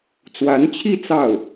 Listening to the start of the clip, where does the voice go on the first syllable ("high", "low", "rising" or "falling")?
rising